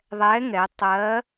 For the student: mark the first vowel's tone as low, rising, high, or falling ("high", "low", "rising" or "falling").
rising